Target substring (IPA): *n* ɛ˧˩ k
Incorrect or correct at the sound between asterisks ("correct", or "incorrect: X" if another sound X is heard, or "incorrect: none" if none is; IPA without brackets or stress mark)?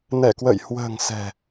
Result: correct